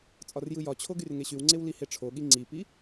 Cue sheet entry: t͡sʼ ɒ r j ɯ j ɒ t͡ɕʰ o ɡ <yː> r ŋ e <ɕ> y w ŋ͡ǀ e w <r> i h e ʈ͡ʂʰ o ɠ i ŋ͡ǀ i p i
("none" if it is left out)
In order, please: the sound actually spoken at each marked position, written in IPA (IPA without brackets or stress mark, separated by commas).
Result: y, ɕ, l